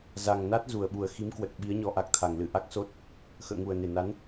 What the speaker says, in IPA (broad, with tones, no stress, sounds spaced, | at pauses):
z a˨˩ ŋ n a˦˥ t̚ z u˨˩ ə̯ ɓ u˨˩ ə̯ x i˨˦ m k w ə˨˩ t̚ ɓ i˨˦ ə̯ ɲ ɔ˨˦ ʔ a˨˩ k̚ t̪ʰ a˨˩ ŋ l ɨ˧˩ ʔ a˦˥ k̚ s o˦˥ t̚ | x ə̰ː˧˨ ŋ u˨˩ ə̯ n e˨˩ n a˨˦ n